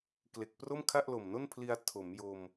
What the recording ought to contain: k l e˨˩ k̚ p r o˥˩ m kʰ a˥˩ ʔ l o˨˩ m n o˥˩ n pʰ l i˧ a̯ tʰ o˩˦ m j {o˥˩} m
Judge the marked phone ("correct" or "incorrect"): incorrect